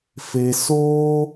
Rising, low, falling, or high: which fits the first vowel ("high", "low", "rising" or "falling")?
low